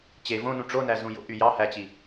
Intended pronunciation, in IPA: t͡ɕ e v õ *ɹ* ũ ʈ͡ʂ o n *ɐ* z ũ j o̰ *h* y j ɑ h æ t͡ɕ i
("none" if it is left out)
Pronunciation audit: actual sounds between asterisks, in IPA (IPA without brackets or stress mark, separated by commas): n, æ, ʔ